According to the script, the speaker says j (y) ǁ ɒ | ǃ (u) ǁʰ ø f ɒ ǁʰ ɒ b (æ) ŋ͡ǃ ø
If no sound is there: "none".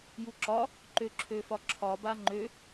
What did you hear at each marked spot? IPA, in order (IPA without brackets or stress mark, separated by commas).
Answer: u, ø, a